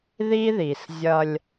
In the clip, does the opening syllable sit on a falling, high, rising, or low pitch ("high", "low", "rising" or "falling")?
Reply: high